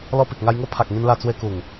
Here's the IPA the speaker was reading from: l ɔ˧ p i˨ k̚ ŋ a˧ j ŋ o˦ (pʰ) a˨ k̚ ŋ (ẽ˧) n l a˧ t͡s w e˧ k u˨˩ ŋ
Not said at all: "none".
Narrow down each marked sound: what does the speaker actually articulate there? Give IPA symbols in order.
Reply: pʰ, ĩ˧

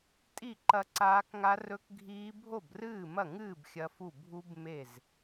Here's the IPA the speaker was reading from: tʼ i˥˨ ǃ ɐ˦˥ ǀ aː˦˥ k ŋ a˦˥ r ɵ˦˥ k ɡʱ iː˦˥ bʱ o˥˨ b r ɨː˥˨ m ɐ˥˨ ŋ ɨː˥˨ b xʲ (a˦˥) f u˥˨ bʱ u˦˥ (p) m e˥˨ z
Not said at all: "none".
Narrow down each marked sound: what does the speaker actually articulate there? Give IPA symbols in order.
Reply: ɐ˦˥, b

